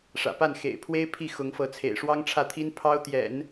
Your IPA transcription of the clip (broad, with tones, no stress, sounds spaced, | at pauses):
ʂ ä̰˨˩ p a˥˩ n x ḛ˨˩ ɪ̯ pʰ w e˥ ɪ̯ pʰ i˥˩ x ʊ˧˥ ŋ f ɤ˧˥ t͡sʰ ḛ˨˩ ɪ̯ ʂ w ɑ˥ ŋ ʈ͡ʂʰ ä˥˩ t̪ʰ i˥ n pʰ ɑ˥ ʊ̯ t̪ j ɛ̰˨˩˦ n